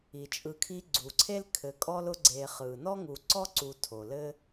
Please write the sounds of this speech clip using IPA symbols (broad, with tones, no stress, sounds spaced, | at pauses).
i˩ t͡ʃʼ ɯ˨ kʰ i˦ ɡ͡ǀ u˩ ǀʰ e˥ l kʰ ɘ˨ kʼ ɔ˥ l ʊ˦ ɡ͡ǀ e˨ χ ɯ˩ n ɔ˥ ŋ u˨ ǀ ɔ˥ ǀ u˨ tʰ o˩ l ɘ˥